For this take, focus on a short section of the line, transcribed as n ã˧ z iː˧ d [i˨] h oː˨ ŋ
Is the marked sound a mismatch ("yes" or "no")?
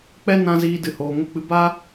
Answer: yes